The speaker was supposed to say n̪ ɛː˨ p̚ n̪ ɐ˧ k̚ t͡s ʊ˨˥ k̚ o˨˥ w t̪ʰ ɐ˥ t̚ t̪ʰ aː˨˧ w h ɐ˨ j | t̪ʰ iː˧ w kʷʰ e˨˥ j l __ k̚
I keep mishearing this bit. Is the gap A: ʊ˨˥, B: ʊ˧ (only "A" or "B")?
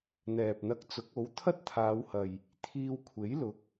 A